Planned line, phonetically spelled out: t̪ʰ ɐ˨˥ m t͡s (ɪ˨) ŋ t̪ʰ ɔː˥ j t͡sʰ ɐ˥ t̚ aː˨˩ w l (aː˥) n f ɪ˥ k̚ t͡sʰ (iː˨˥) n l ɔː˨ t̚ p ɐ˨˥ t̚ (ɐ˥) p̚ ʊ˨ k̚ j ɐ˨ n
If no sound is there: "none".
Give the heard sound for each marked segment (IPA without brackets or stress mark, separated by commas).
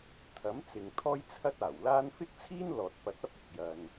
ɪ˨, aː˥, iː˥, ɐ˥